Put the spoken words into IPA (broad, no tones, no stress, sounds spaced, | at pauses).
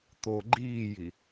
t̪ o ɡ͡ǃ iː j i